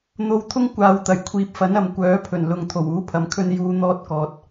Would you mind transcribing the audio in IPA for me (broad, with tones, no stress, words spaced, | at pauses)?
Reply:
n̪o˧wt̪ʰʊ˥ŋ kʷaː˨wt̪ɐ˨˩j kʷʰiː˨p̚fɐ˨˥n ɐ˨m kʷœː˨˥pʰɵ˨˩nlʊ˨ŋ t̪ʰo˨˩wuː˨˥pʰɐ˨mkʰɵ˧n juː˨˧n̪ɔː˧t̚kɔː˨t̚